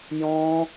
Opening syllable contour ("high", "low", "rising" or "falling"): high